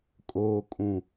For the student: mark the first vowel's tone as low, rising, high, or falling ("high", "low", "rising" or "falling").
low